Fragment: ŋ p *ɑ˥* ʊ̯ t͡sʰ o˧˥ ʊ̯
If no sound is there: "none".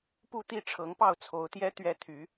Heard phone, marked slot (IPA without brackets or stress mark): ɑ˥˩